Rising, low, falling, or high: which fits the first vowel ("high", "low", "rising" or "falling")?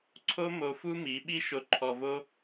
high